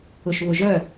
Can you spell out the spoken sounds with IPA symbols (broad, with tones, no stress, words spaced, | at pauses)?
ʊ˨ʃβʊ˨ʒœ˦˨